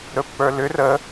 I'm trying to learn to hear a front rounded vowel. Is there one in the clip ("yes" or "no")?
yes